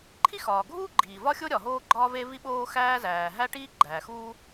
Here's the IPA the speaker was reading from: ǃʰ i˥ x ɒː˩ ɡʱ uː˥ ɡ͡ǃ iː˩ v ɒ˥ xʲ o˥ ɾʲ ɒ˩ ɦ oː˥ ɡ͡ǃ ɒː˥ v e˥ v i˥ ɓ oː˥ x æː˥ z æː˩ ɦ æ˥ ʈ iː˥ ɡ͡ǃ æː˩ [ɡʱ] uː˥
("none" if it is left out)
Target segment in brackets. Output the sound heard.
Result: x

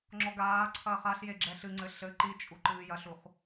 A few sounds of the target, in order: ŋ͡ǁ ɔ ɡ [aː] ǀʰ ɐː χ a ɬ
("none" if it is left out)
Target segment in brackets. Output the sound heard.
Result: aː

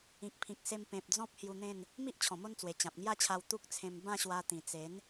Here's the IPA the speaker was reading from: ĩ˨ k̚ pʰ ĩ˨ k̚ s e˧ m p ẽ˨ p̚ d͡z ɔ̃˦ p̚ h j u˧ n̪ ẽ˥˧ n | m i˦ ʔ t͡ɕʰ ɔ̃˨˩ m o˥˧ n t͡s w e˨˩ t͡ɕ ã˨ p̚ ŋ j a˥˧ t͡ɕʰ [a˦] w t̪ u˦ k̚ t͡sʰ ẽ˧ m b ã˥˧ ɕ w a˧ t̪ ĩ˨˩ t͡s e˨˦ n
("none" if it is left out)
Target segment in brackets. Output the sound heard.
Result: a˧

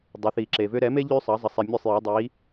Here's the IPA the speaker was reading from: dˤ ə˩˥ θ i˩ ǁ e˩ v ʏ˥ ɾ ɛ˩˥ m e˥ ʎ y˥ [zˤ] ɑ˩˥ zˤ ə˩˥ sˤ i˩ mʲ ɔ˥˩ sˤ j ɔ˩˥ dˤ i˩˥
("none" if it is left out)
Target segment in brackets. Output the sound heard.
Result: sˤ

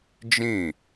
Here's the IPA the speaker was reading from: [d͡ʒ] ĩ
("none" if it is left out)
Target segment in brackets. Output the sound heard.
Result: d͡ʒ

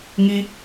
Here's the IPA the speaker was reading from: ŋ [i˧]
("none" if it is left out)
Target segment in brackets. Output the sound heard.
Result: i˧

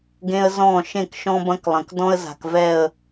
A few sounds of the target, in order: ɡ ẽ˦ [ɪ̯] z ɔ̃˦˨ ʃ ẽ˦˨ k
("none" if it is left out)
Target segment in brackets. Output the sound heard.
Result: ə̯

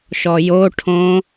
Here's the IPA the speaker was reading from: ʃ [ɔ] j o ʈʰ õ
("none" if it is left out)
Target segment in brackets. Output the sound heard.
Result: ɔ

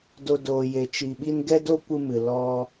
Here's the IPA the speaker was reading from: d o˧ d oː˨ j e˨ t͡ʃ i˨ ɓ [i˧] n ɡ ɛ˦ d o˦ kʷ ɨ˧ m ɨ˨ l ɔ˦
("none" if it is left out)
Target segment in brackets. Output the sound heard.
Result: i˧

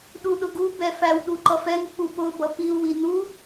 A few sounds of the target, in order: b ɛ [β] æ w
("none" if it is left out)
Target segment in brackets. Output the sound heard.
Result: f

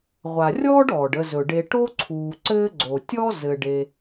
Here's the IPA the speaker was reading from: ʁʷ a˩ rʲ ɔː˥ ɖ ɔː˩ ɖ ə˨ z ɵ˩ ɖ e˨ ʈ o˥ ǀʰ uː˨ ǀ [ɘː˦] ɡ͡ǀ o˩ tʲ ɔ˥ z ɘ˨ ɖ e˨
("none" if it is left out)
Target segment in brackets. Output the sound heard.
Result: ɘː˦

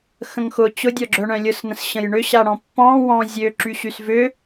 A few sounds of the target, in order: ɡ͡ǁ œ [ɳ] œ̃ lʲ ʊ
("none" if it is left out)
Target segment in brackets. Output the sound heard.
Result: ɳ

